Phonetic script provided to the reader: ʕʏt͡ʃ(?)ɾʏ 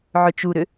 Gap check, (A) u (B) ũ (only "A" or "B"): A